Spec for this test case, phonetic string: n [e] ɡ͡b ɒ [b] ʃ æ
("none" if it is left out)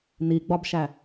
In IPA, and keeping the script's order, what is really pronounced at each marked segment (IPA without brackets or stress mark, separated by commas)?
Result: i, b